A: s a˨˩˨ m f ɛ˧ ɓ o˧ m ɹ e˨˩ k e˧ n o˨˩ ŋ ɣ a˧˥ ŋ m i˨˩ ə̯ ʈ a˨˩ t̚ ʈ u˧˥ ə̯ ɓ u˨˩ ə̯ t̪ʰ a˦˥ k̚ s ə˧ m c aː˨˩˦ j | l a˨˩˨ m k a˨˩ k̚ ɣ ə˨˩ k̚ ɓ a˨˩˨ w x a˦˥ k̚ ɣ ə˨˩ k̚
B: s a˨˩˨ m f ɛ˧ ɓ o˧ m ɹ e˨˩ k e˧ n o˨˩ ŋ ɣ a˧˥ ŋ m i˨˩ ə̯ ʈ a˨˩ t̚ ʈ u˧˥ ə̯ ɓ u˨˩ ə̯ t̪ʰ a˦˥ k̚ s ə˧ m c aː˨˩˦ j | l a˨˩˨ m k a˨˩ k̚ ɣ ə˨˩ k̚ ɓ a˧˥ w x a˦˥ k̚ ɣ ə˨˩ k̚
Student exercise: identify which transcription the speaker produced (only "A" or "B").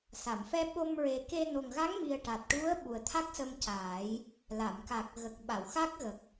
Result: A